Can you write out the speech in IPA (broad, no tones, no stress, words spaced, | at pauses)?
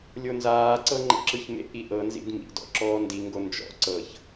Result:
lʲonzaːǀɤ ŋ͡ǃḛǁɯçmḛʔi ʔɤnzḭd mḭdɔ̰ ǁɔːndiŋɡo nd͡ʒɔ̰ ǀɤç